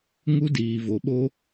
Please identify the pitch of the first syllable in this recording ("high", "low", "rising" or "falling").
high